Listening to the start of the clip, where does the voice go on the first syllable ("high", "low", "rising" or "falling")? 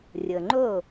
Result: low